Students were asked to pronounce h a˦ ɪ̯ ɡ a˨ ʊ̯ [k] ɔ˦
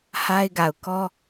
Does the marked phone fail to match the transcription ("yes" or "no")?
no